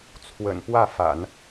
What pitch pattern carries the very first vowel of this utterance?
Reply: low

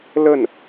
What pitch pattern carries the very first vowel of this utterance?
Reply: falling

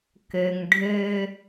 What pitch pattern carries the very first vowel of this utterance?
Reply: low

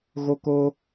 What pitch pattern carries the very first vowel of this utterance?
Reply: high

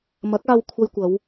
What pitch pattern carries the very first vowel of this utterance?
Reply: rising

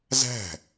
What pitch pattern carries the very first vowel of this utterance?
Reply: falling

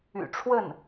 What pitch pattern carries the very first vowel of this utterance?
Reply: low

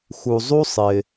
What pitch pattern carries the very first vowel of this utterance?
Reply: low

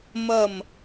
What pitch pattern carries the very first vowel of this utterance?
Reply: falling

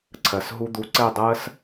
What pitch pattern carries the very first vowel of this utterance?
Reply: low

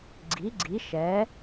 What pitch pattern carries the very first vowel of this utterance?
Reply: rising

